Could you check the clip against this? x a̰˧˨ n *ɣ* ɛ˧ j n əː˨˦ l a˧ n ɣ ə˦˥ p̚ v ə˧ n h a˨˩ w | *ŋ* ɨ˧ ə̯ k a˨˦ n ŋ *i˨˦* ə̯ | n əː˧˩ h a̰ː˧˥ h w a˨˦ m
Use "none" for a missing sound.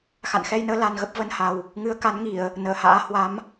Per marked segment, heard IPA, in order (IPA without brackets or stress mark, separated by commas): x, ŋ, i˧˩˨